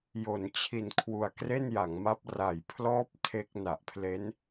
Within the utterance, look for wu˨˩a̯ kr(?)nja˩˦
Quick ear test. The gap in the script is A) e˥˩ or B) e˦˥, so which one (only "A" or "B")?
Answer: A